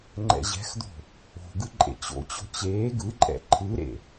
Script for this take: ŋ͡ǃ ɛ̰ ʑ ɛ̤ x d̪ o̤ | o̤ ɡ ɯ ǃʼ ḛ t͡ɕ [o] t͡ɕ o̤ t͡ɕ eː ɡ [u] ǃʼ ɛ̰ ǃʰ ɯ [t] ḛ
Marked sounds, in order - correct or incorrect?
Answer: incorrect, incorrect, incorrect

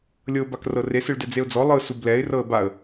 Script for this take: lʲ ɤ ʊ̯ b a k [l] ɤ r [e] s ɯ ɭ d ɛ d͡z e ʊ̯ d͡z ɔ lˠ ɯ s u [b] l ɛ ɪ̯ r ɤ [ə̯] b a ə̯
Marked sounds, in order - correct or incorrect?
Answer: incorrect, correct, correct, correct

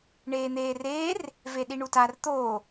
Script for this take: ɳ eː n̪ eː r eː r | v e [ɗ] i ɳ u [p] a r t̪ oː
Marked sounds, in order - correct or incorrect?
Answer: correct, incorrect

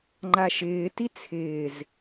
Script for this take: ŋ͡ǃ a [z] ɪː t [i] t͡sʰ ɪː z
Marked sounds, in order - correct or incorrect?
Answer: incorrect, correct

